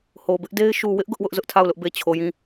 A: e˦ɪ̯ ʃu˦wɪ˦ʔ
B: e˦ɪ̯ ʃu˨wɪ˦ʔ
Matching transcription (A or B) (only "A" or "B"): B